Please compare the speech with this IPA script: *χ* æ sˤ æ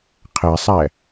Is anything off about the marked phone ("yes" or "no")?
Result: yes